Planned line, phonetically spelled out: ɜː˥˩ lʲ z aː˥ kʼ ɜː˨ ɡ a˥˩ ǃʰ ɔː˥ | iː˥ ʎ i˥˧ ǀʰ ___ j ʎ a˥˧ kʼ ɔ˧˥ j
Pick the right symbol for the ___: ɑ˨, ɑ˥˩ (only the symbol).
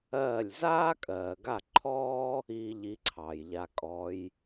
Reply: ɑ˨